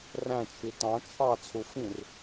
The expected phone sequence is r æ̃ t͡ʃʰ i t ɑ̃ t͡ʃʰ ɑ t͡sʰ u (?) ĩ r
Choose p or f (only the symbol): f